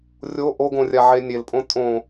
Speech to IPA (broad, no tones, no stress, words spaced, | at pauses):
rʲo ʔoɡõrʲaʕe nʲelpʼõ tʼõ